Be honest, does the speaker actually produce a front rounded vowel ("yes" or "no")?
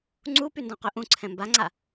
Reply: yes